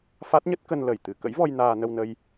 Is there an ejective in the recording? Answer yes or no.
no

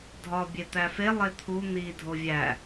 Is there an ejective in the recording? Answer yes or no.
no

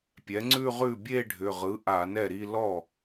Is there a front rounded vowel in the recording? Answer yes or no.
yes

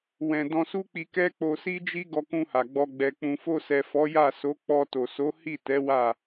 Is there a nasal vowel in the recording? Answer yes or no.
yes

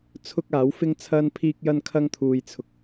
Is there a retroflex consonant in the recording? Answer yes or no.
no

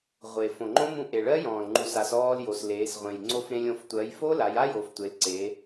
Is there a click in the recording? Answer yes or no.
yes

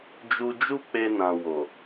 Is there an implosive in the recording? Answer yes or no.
no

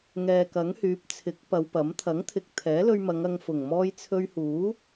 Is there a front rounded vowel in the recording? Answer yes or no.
yes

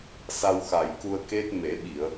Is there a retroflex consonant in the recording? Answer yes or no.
no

